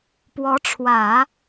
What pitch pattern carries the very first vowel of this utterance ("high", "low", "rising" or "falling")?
rising